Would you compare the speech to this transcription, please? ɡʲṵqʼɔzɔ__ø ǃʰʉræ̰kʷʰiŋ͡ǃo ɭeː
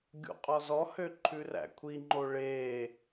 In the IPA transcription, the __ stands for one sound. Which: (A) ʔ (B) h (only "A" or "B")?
B